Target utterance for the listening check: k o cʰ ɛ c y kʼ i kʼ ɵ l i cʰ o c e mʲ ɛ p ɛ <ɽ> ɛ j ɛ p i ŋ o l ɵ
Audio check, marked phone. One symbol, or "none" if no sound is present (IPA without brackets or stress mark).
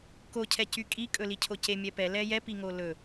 l